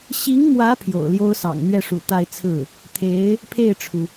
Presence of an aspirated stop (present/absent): present